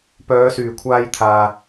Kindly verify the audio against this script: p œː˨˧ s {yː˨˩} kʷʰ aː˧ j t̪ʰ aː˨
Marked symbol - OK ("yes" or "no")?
yes